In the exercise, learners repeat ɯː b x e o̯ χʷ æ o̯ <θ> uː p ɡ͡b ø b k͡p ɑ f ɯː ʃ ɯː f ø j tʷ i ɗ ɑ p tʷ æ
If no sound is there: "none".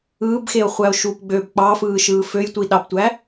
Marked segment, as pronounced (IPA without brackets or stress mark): ʃ